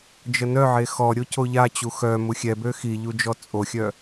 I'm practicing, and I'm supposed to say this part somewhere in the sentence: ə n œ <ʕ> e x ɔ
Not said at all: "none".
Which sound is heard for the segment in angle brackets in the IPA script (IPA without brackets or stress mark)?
ʕ